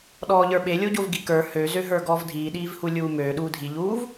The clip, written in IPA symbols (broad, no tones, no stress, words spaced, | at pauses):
ɗɔːʎə˞ɓe lʲoɟovɡikə˞ høzøɦə˞ ɡɔːvdʱiːɗiːvhu lʲuːmøː ɗuːdʱiʎuːv